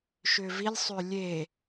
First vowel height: high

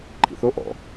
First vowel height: high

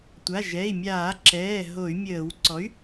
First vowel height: low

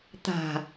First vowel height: low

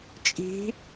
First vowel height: high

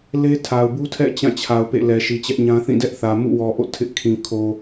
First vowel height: mid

